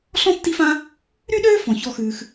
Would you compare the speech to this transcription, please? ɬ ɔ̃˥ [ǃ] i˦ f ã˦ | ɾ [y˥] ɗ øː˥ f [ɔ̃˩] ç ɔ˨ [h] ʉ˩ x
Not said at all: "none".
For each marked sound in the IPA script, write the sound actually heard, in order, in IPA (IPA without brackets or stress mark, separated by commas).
tː, y˥, ɔ̃˩, x